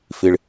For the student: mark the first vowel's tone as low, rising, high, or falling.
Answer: low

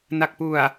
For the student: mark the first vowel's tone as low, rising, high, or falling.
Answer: low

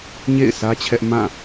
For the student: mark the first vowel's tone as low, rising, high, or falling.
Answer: falling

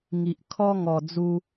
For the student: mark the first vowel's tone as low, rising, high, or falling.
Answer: low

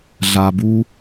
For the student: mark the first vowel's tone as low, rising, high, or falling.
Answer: low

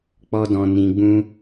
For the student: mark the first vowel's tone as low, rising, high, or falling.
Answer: high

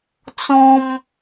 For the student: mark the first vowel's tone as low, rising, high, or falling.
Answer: high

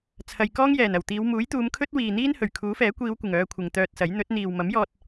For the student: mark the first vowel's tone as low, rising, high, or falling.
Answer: low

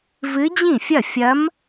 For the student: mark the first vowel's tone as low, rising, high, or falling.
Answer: rising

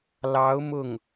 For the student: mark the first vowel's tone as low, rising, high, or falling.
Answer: rising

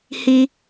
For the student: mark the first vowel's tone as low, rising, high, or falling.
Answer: high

